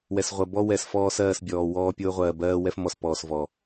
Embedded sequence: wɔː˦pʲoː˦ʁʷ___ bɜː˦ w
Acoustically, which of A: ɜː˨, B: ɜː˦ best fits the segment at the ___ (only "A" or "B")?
A